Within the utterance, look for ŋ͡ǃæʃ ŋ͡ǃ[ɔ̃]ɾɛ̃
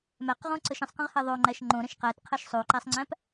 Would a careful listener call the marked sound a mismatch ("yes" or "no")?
yes